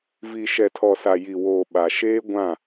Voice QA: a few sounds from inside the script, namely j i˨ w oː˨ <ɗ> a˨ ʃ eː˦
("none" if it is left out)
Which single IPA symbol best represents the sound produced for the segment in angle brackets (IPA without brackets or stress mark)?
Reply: ɓ